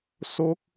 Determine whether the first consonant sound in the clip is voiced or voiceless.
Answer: voiceless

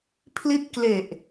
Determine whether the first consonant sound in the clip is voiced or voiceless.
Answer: voiceless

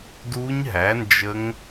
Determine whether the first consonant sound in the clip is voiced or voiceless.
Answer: voiced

